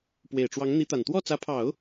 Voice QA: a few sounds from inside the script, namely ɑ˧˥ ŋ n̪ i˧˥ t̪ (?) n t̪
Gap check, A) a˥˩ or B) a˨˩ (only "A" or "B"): B